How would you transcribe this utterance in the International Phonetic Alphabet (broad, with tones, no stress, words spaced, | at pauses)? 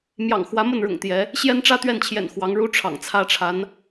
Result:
mjɑ̰˨˩ŋxwä˧˥mə˥˩nɻʊ̰˨˩ŋ t̪jɛ˧˥ | ɕjɛ˥nʈ͡ʂä˥ t̪ɥɛ˥˩nt͡ɕʰjɛ̰˨˩n xwɑ˧˥ŋ ɻu˥ʈ͡ʂʰɑ̰˨˩ŋt͡sʰä˥ʈ͡ʂʰa˧˥n